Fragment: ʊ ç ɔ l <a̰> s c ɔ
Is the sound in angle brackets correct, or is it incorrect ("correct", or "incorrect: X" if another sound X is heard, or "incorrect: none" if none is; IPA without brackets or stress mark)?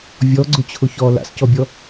correct